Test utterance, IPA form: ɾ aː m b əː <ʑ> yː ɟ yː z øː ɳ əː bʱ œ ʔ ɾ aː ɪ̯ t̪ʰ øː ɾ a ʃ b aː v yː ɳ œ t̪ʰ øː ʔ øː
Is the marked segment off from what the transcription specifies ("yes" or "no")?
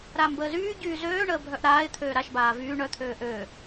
yes